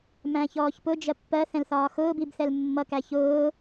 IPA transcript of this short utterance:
m æ̃ː ç ɔː ç p ʊ d͡ʒ ɜ pː ɜ θ ɛ̃ l θ ɒː x ʊː b i b θ ɛ l mː ʌ k æ ç ʊː

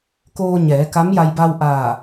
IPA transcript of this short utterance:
k oː˧ ɲ ɛː˩˧ k a˧˥ m j a˧ j b a˧ w ʔ aː˧˩

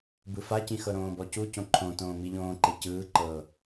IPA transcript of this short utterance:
b ɯ f a c ĩ x ɤ ɾ õː b ɔ c u c õ ǃʰ õ t õː m i ʎ õː ǃ e c ɯː ǃ ɤː

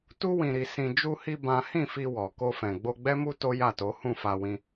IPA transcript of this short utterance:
t u˦ w ĩ˧ ɾ i˧ s ĩ˧ d͡ʒ u˧ h i˧ b ã˦ h ĩ˦˨ f i˧ w ɔ˨ k o˧ f ɛ̃˨ ɡ͡b o˧ ɡ͡b ɛ˦ m u˦ t o˦ j a˦˨ t o˨˦ h ũ˦˨ f a˧ w ĩ˧

